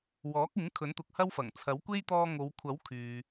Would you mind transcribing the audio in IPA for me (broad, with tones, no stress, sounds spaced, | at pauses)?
w ɔː˨˥ k̚ ɪ˨˥ ŋ kʰ ɵ˨˥ n t̪ ʊ˨˥ k̚ h ɐ˥ w f ɐ˨˩ ŋ t͡sʰ ɐ˨˥ w kʷ e˥ j t̪ ɔː˧ ŋ o˨˧ w kʷʰ ɐ˨˥ w kʰ yː˨